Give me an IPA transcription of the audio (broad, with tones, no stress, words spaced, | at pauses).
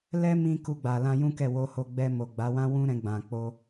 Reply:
lɛ˦mĩ˧ ku˧ɡ͡ba˨lã˧ jũ˦kɛ˦˨wo˧ho˧ ɡ͡bɛ˧mo˨ɡ͡ba˨˦wã˦ wũ˦ɾɛ̃˧ɡ͡bã˨k͡po˧